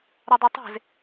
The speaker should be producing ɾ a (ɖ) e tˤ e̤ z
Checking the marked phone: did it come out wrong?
yes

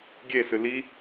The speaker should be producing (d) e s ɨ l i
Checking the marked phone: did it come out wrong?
yes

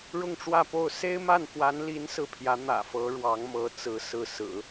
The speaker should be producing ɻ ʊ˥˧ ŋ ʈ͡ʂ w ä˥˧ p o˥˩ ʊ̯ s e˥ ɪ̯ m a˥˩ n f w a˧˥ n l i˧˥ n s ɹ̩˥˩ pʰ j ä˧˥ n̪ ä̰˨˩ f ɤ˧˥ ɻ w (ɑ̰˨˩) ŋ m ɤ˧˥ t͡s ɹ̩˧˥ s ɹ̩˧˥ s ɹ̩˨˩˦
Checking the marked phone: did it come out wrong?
yes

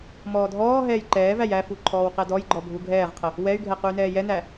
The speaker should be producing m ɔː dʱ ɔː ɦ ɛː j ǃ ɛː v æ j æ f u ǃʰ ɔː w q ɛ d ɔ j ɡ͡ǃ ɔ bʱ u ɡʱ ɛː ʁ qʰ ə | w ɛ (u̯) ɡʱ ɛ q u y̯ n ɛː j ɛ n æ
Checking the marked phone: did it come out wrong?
yes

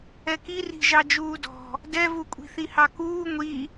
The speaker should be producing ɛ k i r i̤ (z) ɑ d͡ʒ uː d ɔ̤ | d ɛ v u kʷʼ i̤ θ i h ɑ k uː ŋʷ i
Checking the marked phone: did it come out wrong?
yes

